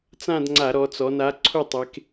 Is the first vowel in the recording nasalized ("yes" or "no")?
yes